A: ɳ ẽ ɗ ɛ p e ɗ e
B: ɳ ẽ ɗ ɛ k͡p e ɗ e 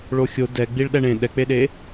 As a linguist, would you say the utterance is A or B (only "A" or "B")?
B